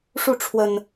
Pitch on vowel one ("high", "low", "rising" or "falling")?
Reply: falling